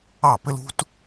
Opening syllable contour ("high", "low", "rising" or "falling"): falling